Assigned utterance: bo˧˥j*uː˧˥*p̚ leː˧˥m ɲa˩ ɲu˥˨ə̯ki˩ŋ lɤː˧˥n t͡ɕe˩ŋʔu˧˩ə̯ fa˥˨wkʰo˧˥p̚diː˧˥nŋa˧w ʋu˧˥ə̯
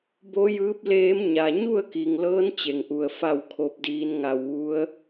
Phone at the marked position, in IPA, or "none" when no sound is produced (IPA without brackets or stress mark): ɯː˧˥